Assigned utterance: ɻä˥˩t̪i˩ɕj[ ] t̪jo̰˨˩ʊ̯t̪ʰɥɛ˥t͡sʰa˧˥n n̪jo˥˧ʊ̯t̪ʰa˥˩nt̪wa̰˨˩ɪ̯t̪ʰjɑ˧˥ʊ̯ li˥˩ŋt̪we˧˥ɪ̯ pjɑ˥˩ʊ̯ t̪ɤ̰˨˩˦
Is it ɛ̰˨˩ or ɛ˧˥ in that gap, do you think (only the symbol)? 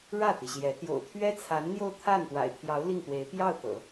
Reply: ɛ˧˥